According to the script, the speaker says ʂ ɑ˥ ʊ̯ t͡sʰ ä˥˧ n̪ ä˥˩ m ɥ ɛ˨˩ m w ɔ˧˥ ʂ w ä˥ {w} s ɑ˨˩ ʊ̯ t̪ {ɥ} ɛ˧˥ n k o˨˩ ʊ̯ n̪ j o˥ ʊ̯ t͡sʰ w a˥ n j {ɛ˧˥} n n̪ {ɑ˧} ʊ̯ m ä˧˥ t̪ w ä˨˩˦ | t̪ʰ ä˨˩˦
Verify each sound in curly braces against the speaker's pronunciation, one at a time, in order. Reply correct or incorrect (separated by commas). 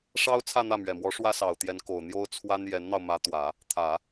incorrect, incorrect, correct, correct